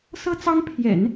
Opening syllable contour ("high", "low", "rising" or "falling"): high